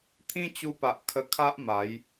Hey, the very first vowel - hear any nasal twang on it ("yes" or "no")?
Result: yes